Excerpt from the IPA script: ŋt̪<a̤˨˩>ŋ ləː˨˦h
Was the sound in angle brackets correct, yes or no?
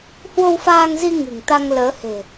no